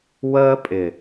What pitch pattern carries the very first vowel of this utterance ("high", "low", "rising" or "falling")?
high